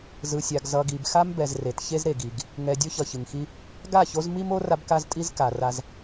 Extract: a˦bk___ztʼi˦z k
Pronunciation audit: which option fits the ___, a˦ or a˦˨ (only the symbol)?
a˦